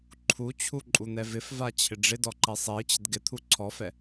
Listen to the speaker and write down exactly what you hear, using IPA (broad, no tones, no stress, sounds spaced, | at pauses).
ǃʰ u t͡ɕʰ u ǃʼ u n̪ ɛ v ɪ f v a t͡ɕʰ ɪ ɖ͡ʐ ɪ d ɔ ǃ ɛ sˤ e i̯ t͡ɕ ɪ d ɡ ɪ t̪ʰ u ǀʰ ɔ f ɛ